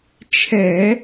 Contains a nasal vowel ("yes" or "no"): no